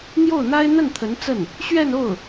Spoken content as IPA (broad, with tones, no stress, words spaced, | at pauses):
n̪jo˥˩ʊ̯n̪a˥ɪ̯ n̪ə˥˩nt̪ʰə˧˥n t͡sə˥˩n | ɕɥɛ˥˧no˥˩ʊ̯